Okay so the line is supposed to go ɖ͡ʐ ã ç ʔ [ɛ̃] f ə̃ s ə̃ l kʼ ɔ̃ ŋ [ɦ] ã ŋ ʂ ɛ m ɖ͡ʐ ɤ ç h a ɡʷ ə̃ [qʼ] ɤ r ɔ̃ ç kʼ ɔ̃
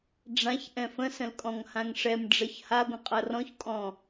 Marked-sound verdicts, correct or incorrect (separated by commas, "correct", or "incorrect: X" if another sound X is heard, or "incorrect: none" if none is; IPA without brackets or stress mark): correct, incorrect: h, correct